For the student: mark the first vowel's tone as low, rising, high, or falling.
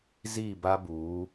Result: falling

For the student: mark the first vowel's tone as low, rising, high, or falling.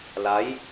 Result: rising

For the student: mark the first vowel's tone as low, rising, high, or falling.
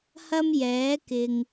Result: high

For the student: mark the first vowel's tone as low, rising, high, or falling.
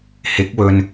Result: rising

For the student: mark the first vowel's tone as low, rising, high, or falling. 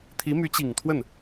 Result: rising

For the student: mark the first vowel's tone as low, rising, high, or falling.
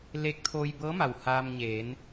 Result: rising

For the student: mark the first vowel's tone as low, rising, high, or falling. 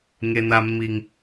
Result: low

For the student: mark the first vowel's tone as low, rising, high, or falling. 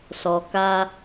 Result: low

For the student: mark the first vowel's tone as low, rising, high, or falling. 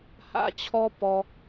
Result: high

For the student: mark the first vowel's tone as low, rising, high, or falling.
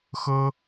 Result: high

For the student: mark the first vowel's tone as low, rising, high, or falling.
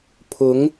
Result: rising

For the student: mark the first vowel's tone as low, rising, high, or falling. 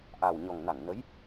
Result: low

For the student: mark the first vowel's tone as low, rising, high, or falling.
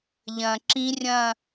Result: low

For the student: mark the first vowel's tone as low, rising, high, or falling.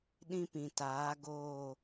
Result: high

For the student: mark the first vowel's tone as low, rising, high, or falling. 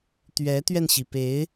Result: rising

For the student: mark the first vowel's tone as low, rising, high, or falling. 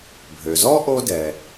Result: low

